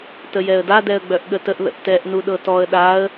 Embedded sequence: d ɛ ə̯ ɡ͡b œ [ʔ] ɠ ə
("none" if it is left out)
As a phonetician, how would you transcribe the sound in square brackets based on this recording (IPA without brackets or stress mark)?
ʔ